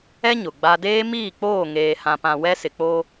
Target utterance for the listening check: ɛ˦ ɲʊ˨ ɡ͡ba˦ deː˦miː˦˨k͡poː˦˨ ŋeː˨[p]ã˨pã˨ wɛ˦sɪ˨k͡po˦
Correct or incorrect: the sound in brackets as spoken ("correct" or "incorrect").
incorrect